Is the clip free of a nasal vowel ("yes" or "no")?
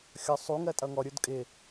yes